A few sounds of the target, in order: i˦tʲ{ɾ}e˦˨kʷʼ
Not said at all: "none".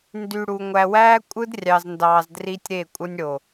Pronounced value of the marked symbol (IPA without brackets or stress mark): ɾ